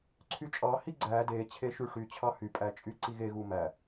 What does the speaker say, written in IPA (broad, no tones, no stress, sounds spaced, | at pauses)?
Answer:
ǀʰ y t͡ʃʼ ɑ h i ɡ͡ǀ æ d e t͡ɕʰ e ʃ y ʂ y t͡ɕʰ ɑ h y pʼ æ t͡ʃʼ y ǀ i ɣ e ɣ u m æ